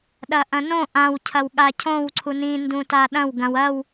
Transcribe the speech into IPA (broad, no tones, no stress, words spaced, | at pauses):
ɗɐʔɐ̃nõ ʔãw cʰɐwɠacʰõw ǀʰunĩ ndũtaɗɐ̃w ɡɐ̃w ɐw